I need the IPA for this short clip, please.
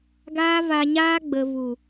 ɡ aː˦ v a˧ ɲ aː˦ ɡ͡b ə˨ v u˨

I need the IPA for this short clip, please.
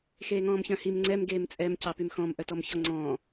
x eː ŋ ɔ̃ː m ç œ̃ h i m ŋ͡ǀ ɛ m ɡ eː m t͡sʼ ɛ m c ɑ p y m x ɔ̃ m ʔ œ t ɔ m ç ɔ ŋ͡ǀ ɔ̃ː

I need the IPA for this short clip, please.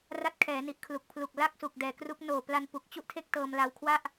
r a˦˥ t̚ kʰ ɛː˩˦ n i˨˩ ʔ kʰ l u˨˩ k̚ pʰ l u˨˩ k̚ l a˥˩ k̚ s u˨˩ k̚ d ɛː˨˩ k r u˦˥ k̚ n oː˨˩ p l a˧ n p u˨˩ k̚ t͡ɕ u˥˩ ʔ tʰ e˥˩ k̚ t ɤː˧ m l a˧ w kʰ w a˥˩ ʔ

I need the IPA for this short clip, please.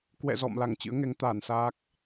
k w ɛ̰˧˨ z ɔ̰˧˨ m l a˧˩ ŋ t͡ɕ ɨ̰˧˥ ə̯ ŋ ɛ˨˦ ŋ t̪ aː˧˩ n s aː˦˥ k̚

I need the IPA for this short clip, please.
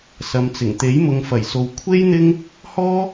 s ɐ˨ m t͡s ɪ˨˩ ŋ t̪ e˨˥ j m ʊ˨ ŋ f ɐ˨˩ j s o˨ w kʷʰ e˥ j n̪ ɪ˥ ŋ | h ɔː˥

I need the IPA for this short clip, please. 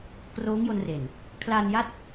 k r oː˦˥ ŋ j o˧ n r e˨˩ n | kʰ l aː˧ n j a˦˥ t̚

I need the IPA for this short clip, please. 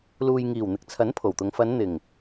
l uː˨ j ŋ iː˨˩ w n̪ ɪ˨ k̚ t͡sʰ ɐ˨˥ n pʰ o˨˩ w t̪ ʊ˨˧ ŋ f ɐ˨˧ n n̪ ɪ˨˩ ŋ

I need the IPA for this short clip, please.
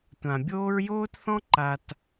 tʷ ã˨ bʲ oː˦ ɹ j oː˦ t θ ɔ̃˦ ǃ a˨ t

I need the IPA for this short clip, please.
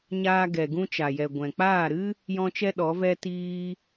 ɲ aː˧ ɡ ɛ˨ ɡ ũ˧ t͡ʃ a˨ j ɛ˨ ɡʷ ɛ̃˨ k͡p aː˦˨ ɾ ɨ˦ | j ɔ̃˦ t͡ʃ ɛ˦ ɗ ɔ˨˦ v ɛ˦ t iː˦

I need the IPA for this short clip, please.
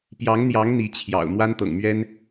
p j ɑ˧˥ ŋ n̪ j ɑ˧˥ ŋ n̪ i˧˥ t͡ɕʰ j ɑ̰˨˩ ʊ̯ m w a˥ n t̪ ɤ̰˨˩ ŋ m ɥ ɛ˥ n

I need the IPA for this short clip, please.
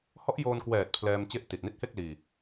h ɔ˦˥ ʔ j oː˧ n k w ɛː˨˩ t̚ pʰ l ɛː˧ m t͡ɕ e˦˥ ʔ t i˨˩ t̚ n i˦˥ t̚ h e˥˩ k̚ l iː˧

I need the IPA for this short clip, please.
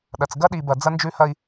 ɗ ɐ˨ t͡s ɡ ɐ˦ ɗ i˨ b ɐ˨ d͡z ɐ˦ n d͡ʒ ʉ˦ h ɐ˦ i̯

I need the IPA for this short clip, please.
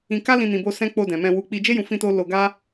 ĩ˧ k a˦ l ĩ˧ n ĩ˨ b o˧ s ɛ̃˦ k͡p o˧ d ɛ̃˨ m ɛ̃˧ w u˧ k͡p i˧ d͡ʒ e˦ j ũ˧ f ĩ˦ t o˦ l o˧ ɡ a˦

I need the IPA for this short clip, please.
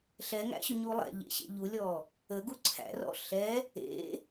ɬ ɛ ŋ æ̰ ɕ ʏ ɲ u lˠ ɛ̰ ʎ ḛ ɕ ḛ ʎ u lʲ ɔ | ə ɡ u ǀʰ æ̰ r ɔ̰ ɬ ɛ | ḛ

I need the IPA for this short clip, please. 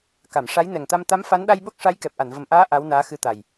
k a˨˩˨ m ʂ a˧˥ j n ɛ˨˩ ŋ t̪ a˧ m t̪ a˧˥ m f a˧˥ n ɗ a˧ j ɓ o˦˥ k̚ ʂ a˧˥ j k ɛ˨˩ p̚ ʔ a˨˩˨ n v ə˨˩ m ʔ aː˧˥ ʔ a˧˥ w n aː˧˥ x ɨ˧˥ t̪ a˨˩ j

